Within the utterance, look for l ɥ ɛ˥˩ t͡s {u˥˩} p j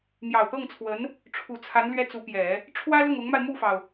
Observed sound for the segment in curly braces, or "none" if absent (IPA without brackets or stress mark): u˧˥